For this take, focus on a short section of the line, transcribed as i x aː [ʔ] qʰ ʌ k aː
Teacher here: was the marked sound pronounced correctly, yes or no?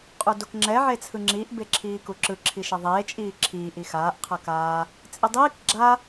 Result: yes